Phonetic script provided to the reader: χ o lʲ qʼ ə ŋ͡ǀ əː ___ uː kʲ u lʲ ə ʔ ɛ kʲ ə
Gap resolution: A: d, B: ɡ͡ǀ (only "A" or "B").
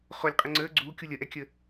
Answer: B